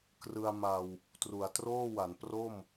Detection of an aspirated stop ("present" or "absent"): absent